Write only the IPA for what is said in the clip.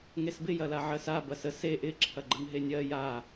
ŋesbɪ jɐlaʕɜsa bɐsə se ʔɪ ǁʰɐɡ͡ǃəŋɦenʲɜ ja

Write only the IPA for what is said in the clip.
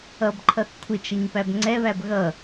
ʌbǃʰʌθ kʷʰɪt͡ʃʌɲpæb ŋ͡ǀɛβæb ɣʌ

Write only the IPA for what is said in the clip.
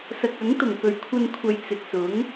sɐ˨k̚ɐ˨˥ŋ t̪ʊ˨˩ŋpɵ˨˩ɥkʷʰɐ˧nkʷʰɐ˨j t͡sɪ˨k̚sʊ˨˥ŋ

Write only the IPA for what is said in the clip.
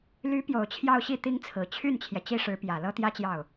ly˧˥ pjo˨˩ʊ̯t͡ɕʰjɑ˥˧ʊ̯ɕi˥˩ t̪i˥ŋt͡sʰɹ̩˨˩ t͡ɕʰy˥˩nt͡ɕʰjɛ˩ t͡ɕi˥ʂɻ̩˧˥ pjä˨˩ lɤ˥t̪jä˥t͡ɕjɑ˥˩ʊ̯

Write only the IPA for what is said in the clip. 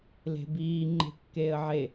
le̤biː ŋ͡ǃe̤kːeːə̯ʕe

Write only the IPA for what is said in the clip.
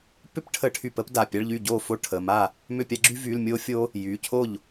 pʏ˥pʈʰə˧˥˧ʈʰy˧˩p ə˥pda˩˧˩pʲa˧˥˧ɭʎy˥˩ ɟo˥˩ fo˥ ʈʰə˩˧˩ma˥˩ | mʏ˥˩pʲa˥ɡ͡ǁy˥ vy˧˥˧lmʲo˥fʲo˥ | jy˩˧˩cʰo˥˩ʎ

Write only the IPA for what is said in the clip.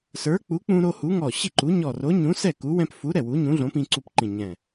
sə˞˨˥k͡pu˨˥ k͡pũ˦ɾo˦hu˨˥ŋɔ˧˩ ɕi˥˩ǃu˨˥ ɲɔ˧˩ro˨˥ɲũ˨˥sɛ˥˩ ku˨˥wɛ̃˦p fu˨˥ ɾɛ˧˩ wu˨˥ɲũ˨˥ɮõ˨˥ pĩ˦ǀu˦pǃĩ˧˩ɲɛ̃˧˩

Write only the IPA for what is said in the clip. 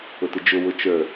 ʊtɨd͡ʒʊ wʊt͡ʃə˞

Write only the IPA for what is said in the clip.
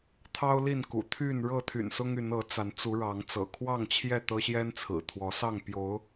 t̪ʰɑ˦ʊ̯li˥˨nkṵ˨˩t̪ʰy˥˨n ɻɤ˥˨t̪ʰy̰˨˩nsʊ˦ŋy˨˦n ɤ˨˦t͡sa˨˦nt͡su˨˦ɻɑ˨˦ŋ t͡sɤ̰˨˩kʰwɑ˥˨ŋt͡ɕʰjɛ˥˨ t̪ɤ˦ɕjɛ˦nt͡sʰɹ̩˨˩ t̪ʰwɔ˨˦sɑ˥˨ŋ pjo˨˦ʊ̯

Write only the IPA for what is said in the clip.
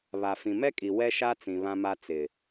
βa˨fĩ˨mɛ˦kʼi˨ wɛ˦ʃa˦t͡sĩ˨ βã˦ma˦ t͡sɪ˨

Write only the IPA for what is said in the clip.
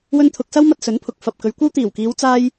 wɵ˥nt̪ʰʊ˧k̚ sɐ˥wmɐ˧t̚sɵ˨˥n pʰʊ˨k̚ fɐ˨p̚ kɵ˨˧ɥkʷɐ˥w t̪iː˨˩wkiː˨˧w t͡saː˥j

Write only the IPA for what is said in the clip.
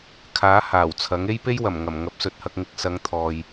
kʰaː˨˥ haː˨˩wt͡sʰɐ˨˥ŋ e˥jpe˥jwɐ˨˩mŋɐ˨˩m ŋɐ˨˥p̚sɵ˨t̚hɐ˧k̚ŋɪ˧k̚ sɐ˨˧ŋ t̪ʰɔː˨j

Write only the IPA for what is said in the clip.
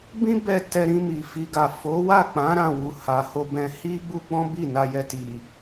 bĩ˦ bɛ˦˨tɛ˧ɾĩ˧ mi˨ fi˨ ɡa˨ fo˨˦wa˦˨k͡pã˨˦ ɾã˦˨wu˨ ha˨ ho˧bɛ̃˧ hi˦ɡ͡bu˦ɡ͡bɔ̃˦ bi˦˨na˧jɛ˧ ti˨

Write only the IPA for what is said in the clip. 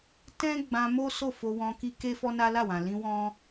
tɛ̃˦ ɡ͡bã˧mo˦ so˦˨fo˧wɔ̃˧ ki˧ ke˦fɔ˦ na˦la˦˨wã˨ lĩ˧ wɔ̃˦

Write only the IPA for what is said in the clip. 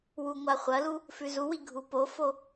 wuŋʷaχʷɐlu | fʉzuwi ɡʱupofo

